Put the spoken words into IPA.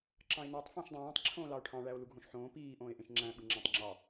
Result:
ǁ ɑ̃ e̯ n æ tˤ f õ ʃ dˤ æ̃ː tˤ ǁʰ õː l ɑ o̯ ʈʰ ɑ̃ ɭ æ o̯ l u ɡʱ õ ʃ ħ õː p iː ʔ õː e̯ ʔ ẽ ʃ ŋ͡ǁ æ̃ ɓ ɯ ŋ͡ǁ æ̃ tˤ ŋ͡ǁ ɑ

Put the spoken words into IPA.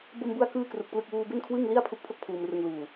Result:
b o˧ m b u˧ a̯ k ɯː˥˩ k r u˨˩ k̚ p l ɯ˥˩ k̚ w uː˧ b e˥˩ n kʰ w ɯ˥˩ ŋ l i˥˩ a̯ pʰ u˦˥ k̚ pʰ o˥˩ k̚ pʰ uː˧ m r ɯ˧ ŋ l uː˨˩

